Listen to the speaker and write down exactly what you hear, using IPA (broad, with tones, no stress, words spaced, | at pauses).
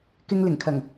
kɪ˧ŋlɪ˨˩ŋkʰɐ˨˩ŋ